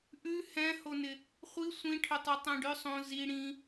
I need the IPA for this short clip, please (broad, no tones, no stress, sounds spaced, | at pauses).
ʔ ʉ h ɛ̃ h o n ɪ | χʷ i sʷ ĩ ʈʰ ʏ tˤ u tˤ ɛ̃ ɖ ʏ sˤ õ z i ɽ ĩ